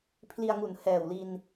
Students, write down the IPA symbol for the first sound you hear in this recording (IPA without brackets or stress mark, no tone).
pʰ